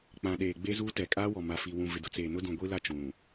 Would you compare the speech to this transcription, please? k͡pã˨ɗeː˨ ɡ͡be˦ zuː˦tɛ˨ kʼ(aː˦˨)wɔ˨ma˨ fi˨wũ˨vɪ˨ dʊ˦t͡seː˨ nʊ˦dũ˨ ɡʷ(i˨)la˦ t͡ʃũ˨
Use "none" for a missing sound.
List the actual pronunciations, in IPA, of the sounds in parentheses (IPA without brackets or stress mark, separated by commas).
aː˦, i˦